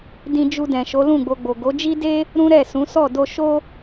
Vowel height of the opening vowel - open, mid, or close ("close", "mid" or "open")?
close